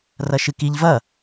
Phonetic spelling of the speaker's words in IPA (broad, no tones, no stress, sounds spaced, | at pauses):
r ɐ ʃ ɨ k i ʎ v ɐ